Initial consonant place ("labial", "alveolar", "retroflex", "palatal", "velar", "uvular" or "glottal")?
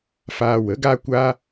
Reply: labial